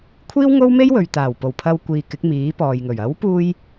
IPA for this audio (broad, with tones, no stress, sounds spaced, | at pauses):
kʷʰ iː˥ w ŋ o˥ w m e˥ j w ɵ˨ ɥ t̪ aː˨˩ w p o˨˩ w pʰ ɐ˧ w kʷ iː˨ k ɪ˨˥ k̚ m iː˨˥ p ɔː˨ j ŋ ɵ˨˩ ɥ ɐ˨˥ w p uː˧ j